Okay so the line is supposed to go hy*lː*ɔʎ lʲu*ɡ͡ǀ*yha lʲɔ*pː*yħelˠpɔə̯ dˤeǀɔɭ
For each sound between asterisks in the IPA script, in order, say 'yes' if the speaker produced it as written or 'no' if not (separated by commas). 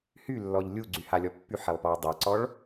yes, yes, yes